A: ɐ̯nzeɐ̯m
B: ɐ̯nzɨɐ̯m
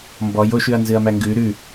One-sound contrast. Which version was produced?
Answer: B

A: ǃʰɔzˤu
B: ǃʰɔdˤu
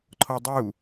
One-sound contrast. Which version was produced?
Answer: B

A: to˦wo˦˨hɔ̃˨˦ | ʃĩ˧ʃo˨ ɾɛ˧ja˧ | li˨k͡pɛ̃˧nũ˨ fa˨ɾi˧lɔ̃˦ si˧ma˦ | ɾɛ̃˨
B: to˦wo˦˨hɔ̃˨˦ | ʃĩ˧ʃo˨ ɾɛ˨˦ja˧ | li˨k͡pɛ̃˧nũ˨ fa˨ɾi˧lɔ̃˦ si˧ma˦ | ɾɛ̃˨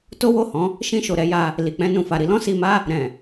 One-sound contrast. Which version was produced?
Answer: B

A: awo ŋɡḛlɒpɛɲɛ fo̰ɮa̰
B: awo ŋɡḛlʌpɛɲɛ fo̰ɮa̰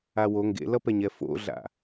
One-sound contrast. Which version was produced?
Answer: B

